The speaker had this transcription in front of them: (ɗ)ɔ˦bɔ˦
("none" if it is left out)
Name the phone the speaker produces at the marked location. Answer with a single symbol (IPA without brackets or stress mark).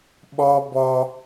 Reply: ɓ